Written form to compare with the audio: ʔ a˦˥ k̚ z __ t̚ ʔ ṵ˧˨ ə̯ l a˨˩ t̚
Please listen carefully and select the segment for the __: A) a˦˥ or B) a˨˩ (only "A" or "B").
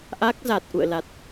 B